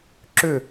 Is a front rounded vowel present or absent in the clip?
present